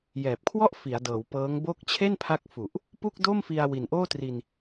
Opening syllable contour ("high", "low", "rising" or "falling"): low